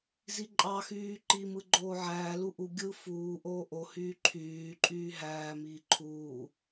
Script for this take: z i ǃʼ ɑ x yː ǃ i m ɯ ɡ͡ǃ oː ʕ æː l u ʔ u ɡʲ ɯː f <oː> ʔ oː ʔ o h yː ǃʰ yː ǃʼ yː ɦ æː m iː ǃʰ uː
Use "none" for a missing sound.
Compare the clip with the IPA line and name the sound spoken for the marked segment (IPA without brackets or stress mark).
uː